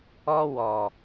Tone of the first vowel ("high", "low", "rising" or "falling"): high